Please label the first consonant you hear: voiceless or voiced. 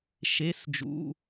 voiceless